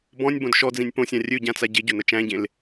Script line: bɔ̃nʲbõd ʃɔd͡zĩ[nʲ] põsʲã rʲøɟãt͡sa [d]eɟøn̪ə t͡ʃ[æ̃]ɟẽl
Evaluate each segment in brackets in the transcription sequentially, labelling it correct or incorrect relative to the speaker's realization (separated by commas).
correct, incorrect, correct